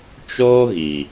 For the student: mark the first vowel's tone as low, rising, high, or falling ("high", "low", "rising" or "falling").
high